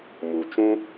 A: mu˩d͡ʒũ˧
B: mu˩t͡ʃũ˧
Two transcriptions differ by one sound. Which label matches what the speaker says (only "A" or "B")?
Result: B